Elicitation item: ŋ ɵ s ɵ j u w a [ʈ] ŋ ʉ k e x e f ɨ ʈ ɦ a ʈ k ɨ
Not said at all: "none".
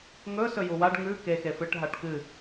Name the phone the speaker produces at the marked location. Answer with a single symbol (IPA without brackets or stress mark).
ɖ